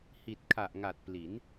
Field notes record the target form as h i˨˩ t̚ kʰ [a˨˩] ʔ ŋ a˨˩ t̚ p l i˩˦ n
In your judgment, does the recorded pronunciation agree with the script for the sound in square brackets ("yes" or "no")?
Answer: yes